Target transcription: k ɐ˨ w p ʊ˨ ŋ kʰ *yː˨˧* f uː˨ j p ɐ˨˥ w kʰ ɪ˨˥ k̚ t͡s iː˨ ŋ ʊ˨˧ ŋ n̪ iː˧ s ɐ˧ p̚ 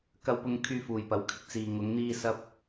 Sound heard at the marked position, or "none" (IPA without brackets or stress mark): yː˧